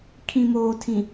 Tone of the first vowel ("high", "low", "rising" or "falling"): low